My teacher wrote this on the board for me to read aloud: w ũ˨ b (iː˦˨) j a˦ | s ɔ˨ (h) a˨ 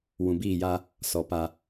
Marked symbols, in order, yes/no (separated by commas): yes, no